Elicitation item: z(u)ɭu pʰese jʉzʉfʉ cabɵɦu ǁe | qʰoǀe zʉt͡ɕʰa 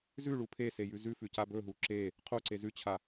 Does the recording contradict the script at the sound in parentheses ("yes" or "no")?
yes